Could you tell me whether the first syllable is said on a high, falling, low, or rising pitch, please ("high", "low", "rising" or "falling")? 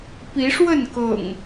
rising